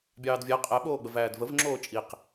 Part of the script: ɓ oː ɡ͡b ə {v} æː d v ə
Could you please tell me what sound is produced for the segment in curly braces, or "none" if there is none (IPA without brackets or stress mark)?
v